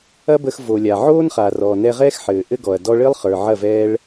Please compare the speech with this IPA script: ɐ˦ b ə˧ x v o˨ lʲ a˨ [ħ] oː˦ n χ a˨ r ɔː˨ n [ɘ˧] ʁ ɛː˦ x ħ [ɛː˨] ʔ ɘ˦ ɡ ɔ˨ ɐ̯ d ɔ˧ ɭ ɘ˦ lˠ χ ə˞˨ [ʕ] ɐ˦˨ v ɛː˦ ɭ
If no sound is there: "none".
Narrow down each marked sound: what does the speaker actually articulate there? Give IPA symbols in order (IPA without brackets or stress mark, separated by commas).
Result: ʕ, ɛ˧, ɘː˨, ʕ